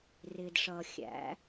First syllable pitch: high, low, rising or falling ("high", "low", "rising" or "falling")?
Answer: low